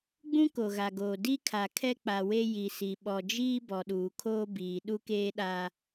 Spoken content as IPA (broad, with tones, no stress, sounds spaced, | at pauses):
ɡ͡b ũ˦ k o˨ ɣ a˨ ɡ oː˨ d i˦ kʰ a˨ kʰ ɛ˦ k͡p a˨ w e˦ j i˨ s i˨ ɓ ɔ˨ d͡ʒ iː˦ b ɔ˨ ɗ uː˨ kʰ oː˦ b iː˨ ɗ u˦ k eː˦ ɗ aː˦